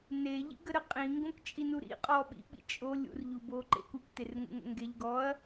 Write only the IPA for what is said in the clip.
neʎḭɡəɾə qʼĩŋɡõkt͡ʃʼinu ɾḭqʼɔ ɓḭɓḭ t͡ʃʼo lʲṵrʎuboǃḛk ukterŋṵŋə̰ ŋɡeʎ ɡɔɐ̯

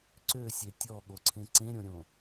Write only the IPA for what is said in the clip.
ǀøsʲe tʲɔɠoǀʰẽ ǀẽɾʲõɾʲõ

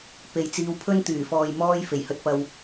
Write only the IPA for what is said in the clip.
pe˨jt͡siː˧wpʰɵ˥n t̪yː˨˩fɔː˨j mɔː˥j fe˨˩jhɵ˧t̚pɐ˧w

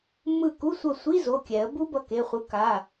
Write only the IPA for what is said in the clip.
mːɯ˦˨ku˧˥˧sʷʌ˦˨ sʷi˧˥˧zo˩˧˩ kʲɛ˨˩˦ə̯ bu˦˥bʌ˩˧˩ke˩˧˩ χʷɯ˨˦ka˩˧˩

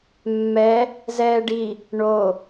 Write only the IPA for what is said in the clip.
mːɛ | zɛːɖi | ɳo

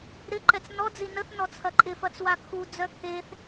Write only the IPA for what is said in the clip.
ɾɪǃɛt͡s nɔd͡zi nəθnɔt͡sʰɐ ǃʼɪfɐt͡swa kʰud͡zœ kʰeθ

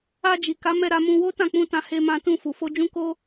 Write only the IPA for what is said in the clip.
a˧d͡ʒi˨ka˨˦ mɛ˧ɾa˧mũ˧wo˦ tã˦˨k͡pũ˧tã˧ he˧mã˧tũ˧ fu˨fo˧d͡ʒũ˦ko˦

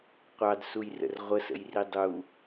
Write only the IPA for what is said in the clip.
qʷɑdsujrə̰r ʁʷəsə̰jri dˤu

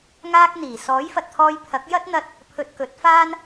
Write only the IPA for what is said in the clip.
ŋaː˧k̚ n̪iː˨˩ sɔː˨˥jfɐ˨t̚t̪ʰɔː˧j pʰɐ˨˥k̚ jɐ˥t̚n̪ɐ˧t̚ | pʰɵ˧t̚kɵ˨˥t̚faː˥n

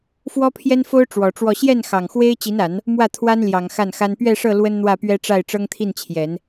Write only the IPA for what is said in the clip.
fwɔ˥pʰjɛ˥nfo˥ʊ̯ ʈ͡ʂwɔ˨˩ʈ͡ʂwɔ˥˧ ɕjɛ˥˩n xɑ˨˩ŋxwe˥ɪ̯ t͡ɕi˧˥na˨˩˦n | mwä˥˩t̪ʰwa˥nljɑ˨˩ŋ xa˥˩nxa˥n pɥɛ˥˧ʂɤ˥˩ lwə˥nn̪wä˥˩pɥɛ˥ʈ͡ʂa˥˩ɪ̯ ʈ͡ʂɤ˥ŋt̪ʰi˥˩nt͡ɕʰjɛ˨˩˦n

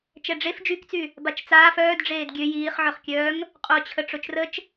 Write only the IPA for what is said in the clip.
t͡ʃɛɖ͡ʐef d͡ʒykt͡sy | bat͡ʃt͡saːf œːdɖ͡ʐeːd ɡʲø jiːχʕœχkʲœːŋ | qʼot͡ɕʰə ʈ͡ʂot͡ʃrət͡ʃ

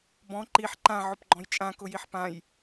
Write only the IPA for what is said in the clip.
bɔ̃ ǃiħ ǃã ʕʊpɡ͡ǃɔ̃jt͡ʃʼã kʊjiħpãj

